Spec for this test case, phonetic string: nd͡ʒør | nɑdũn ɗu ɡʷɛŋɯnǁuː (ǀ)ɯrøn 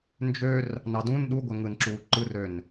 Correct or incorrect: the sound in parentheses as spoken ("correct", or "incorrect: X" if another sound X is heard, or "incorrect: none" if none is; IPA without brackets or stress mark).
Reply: incorrect: ǃ